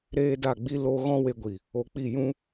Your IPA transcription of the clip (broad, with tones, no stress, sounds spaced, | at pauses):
ɾ eː˦ d a˦˨ ɡ͡b i˦ l o˦ ɣ ɔ̃˦ w e˧ ɡʷ i˨ | o˧ k͡p i˦˨ j ũ˦